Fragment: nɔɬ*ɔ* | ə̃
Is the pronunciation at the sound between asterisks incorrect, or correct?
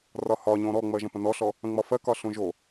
correct